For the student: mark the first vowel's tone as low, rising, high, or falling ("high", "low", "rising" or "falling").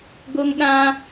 high